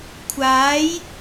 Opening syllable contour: rising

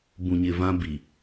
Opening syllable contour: low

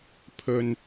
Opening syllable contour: low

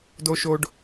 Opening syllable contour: high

